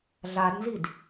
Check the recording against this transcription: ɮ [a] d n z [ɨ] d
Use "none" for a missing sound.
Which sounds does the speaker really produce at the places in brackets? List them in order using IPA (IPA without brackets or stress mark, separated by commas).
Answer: a, i